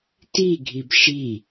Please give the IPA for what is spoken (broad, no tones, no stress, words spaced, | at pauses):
tiɡʱib ʃi